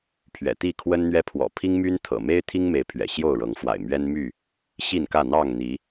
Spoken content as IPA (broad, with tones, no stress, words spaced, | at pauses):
pʰɥɛ̰˨˩t̪i˥˨kʰwə˦nn̪ɥɛ˦ pʰwɔ̰˨˩pʰi˦ŋmy˦n t̪ʰɤ̰˨˩ me˦ɪ̯t̪ʰi˦ŋme˨˦ɪ̯ pʰɥɛ̰˨˩ɕjo˥˨ʊ̯ɻɤ˨˦ŋfwa̰˨˩ɪ̯ mɥɛ˦nmy˥˨ | ɕi˥˨nkä˥˨ n̪ɑ˥˨ŋn̪i˨˦